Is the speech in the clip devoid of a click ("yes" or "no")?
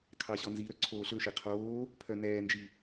no